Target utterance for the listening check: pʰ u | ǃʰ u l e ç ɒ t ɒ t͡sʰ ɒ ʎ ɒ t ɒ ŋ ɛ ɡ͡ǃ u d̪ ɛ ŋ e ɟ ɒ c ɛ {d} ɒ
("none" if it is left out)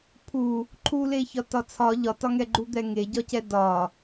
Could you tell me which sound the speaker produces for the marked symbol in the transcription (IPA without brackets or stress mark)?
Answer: d